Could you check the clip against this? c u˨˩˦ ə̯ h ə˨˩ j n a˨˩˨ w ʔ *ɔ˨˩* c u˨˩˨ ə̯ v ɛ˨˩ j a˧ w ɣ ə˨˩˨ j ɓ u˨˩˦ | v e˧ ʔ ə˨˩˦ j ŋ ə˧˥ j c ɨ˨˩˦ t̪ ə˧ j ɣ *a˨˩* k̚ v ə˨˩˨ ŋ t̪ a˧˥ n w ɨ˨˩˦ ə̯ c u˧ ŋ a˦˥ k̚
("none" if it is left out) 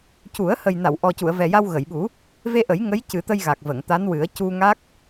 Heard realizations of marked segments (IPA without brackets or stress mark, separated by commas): ɔ˨˩, a˨˩